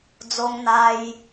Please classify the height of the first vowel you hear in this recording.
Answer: mid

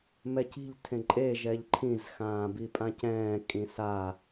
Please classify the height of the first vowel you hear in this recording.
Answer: mid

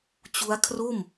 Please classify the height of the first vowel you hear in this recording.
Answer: high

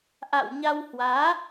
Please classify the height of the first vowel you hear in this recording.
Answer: low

